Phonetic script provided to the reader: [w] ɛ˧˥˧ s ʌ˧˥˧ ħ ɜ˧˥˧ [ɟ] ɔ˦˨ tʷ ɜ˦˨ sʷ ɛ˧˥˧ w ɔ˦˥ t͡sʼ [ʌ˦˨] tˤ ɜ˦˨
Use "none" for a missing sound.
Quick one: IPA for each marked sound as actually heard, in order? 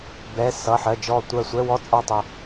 b, d͡ʒ, ɑ˦˨

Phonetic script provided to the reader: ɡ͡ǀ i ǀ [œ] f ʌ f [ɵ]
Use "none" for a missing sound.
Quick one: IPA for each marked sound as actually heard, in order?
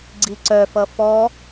œ, ɔ

